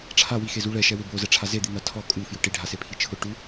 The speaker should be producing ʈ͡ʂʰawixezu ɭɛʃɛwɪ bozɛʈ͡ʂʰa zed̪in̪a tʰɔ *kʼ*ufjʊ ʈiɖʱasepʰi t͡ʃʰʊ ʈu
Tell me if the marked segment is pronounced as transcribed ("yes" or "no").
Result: yes